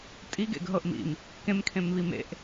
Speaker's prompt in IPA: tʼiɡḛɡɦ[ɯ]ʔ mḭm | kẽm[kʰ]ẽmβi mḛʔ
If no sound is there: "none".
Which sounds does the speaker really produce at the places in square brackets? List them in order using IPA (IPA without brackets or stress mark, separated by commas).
ɤ, kʰ